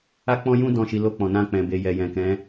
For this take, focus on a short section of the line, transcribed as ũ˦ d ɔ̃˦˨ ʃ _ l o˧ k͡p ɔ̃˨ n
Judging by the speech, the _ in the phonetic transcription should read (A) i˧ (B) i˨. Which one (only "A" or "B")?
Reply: A